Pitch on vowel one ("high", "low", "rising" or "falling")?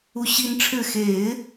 high